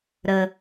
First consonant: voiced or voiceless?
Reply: voiced